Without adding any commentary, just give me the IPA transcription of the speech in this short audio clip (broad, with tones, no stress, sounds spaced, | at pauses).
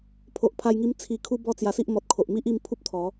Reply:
pʰ o˨ ʔ pʰ a˧ j ŋ i˧ m t͡sʰ i˨˩ kʰ u˦ b ɔ˥˧ t͡s j a˧ s i˦ ʔ m ɔ˨ t̚ kʰ o˨ ʔ m i˦ ʔ i˧ m pʰ u˦ p̚ t̪ʰ ɔ˨˦